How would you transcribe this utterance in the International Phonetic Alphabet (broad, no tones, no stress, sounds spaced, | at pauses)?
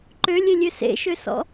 ǃ ø lʲ e lʲ ø s ḛ ʃ ø s ɔ̰